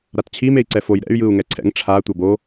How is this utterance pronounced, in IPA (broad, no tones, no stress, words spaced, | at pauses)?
ɾatt͡ɕʰi mei̯ǀɛfoj ɾɛ̰y̯ jɯu̯ŋɛǀʰɛ̰ŋ ʈ͡ʂʰa tʷʌbo